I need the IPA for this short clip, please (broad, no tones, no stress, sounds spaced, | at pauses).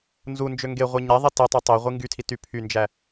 n z u n d͡ʒ ø ŋ ɡ e ʁʷ i ɲ æ ðˤ i t i tˤ ø tˤ i ʁʷ i ŋ ɡ y tʰ i t y pʰ y n d͡ʒ æ